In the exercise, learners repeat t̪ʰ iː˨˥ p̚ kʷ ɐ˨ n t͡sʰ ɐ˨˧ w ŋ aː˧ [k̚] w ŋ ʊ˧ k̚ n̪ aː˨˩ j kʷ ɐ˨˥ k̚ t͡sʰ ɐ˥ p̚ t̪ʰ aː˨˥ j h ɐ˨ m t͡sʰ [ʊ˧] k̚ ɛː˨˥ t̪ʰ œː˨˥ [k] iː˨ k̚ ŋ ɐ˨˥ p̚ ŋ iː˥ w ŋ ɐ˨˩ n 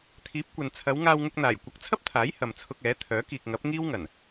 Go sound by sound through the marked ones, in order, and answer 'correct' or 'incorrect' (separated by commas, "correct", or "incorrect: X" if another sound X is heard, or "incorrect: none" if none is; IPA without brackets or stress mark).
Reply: incorrect: none, correct, correct